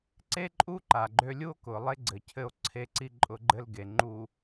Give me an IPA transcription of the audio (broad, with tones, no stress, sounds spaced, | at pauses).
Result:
ǀ e˦ ǃʼ u˦ ǃ a˨ ɡ͡ǃ ø˦ lʲ u˦ o̯ k ʊ˨ lˠ e˦ ɡ͡ǀ ɘ˨ cʰ ɘ˦˨ o̯ ǀʰ e˦ ǀ i˦ ǃʼ ʊ˦ ɡ͡ǃ ɘ˦ l ɡ e˨ ŋ͡ǃ u˨